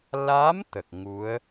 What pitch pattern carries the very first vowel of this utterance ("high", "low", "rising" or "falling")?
rising